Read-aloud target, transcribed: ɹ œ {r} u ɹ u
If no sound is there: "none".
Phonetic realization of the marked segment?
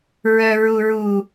ɹ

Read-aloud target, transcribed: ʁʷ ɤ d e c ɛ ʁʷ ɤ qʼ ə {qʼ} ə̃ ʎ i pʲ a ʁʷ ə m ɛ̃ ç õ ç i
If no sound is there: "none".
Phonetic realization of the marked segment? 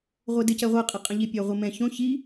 qʼ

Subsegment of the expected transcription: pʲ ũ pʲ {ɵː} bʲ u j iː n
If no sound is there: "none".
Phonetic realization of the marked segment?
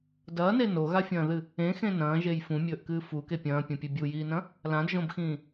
ɵ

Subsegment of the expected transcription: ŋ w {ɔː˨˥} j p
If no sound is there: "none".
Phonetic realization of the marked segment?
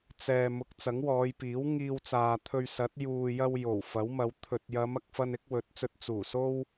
ɔː˨˧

